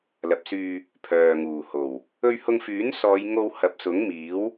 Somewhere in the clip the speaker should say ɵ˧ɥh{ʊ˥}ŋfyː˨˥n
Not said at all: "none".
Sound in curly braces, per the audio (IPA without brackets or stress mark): ʊ˧